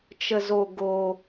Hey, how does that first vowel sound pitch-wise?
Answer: high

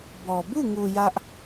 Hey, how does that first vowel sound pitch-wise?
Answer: low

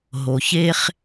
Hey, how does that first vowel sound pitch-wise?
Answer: low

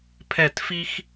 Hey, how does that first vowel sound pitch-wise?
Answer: falling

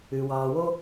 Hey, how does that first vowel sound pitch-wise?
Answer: low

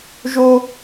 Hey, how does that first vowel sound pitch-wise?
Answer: high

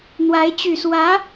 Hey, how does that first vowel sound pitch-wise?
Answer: rising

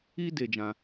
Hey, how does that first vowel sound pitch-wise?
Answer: high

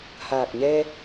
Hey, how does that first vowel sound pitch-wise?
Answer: low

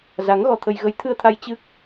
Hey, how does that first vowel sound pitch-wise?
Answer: rising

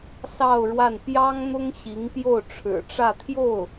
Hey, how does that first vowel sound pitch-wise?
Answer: falling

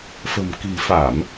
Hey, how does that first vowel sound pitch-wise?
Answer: low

